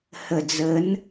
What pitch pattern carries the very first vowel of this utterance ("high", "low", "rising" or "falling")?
low